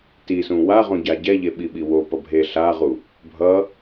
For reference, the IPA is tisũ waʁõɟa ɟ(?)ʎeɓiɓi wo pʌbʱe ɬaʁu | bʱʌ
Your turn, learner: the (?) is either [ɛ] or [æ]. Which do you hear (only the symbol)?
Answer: ɛ